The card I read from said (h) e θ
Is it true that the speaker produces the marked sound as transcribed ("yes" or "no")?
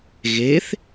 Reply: no